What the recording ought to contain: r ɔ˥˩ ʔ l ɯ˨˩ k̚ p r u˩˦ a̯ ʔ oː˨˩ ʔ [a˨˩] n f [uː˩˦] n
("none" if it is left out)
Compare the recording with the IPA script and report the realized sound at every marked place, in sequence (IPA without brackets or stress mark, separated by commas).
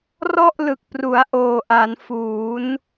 a˩˦, uː˩˦